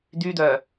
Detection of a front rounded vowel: present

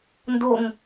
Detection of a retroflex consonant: absent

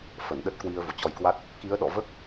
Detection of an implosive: present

